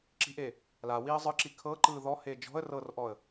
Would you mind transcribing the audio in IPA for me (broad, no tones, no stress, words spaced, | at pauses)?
ǁi̤ʔe | la wiːə̯zˤɯǁi kʰɤǃɯː ðɔhe d͡ʒɔ̤ə̯ rɤrʔɔə̯